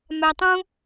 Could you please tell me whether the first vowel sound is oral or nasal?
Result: oral